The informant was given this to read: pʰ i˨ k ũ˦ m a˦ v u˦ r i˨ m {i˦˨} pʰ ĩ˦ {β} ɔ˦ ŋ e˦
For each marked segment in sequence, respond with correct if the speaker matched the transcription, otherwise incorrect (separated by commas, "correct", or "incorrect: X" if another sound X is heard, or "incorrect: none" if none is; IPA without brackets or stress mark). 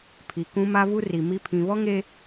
incorrect: i˦, correct